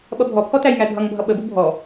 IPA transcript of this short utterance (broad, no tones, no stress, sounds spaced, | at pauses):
ɓ ʌ bʱ ɔ pʰ ɔ t æ j ŋ æ dʱ ʌ ŋ bʱ ʌ ɓ ə b u bʱ ɔ